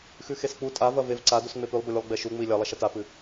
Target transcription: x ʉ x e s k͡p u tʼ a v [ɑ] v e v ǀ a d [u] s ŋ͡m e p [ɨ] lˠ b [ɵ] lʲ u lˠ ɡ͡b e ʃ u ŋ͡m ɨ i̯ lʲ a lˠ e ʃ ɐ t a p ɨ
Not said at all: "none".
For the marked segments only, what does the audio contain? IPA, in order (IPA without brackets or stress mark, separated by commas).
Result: ɐ, u, ʉ, ɵ